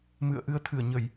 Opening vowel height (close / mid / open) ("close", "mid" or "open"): close